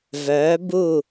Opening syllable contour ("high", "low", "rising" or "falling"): rising